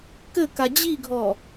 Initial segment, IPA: k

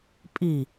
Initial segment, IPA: pʼ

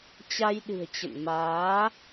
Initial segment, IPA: t͡ɕ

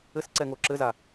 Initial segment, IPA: ɘ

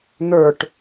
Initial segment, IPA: n̪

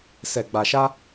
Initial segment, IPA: s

